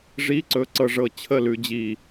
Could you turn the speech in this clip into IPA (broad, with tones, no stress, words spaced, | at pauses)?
ʐi˧˥˧ǀɵ˧ ǀɤ˧ʐɤ˧˩ t͡ɕʰə˥˨lʉ˧d͡ʑi˧˩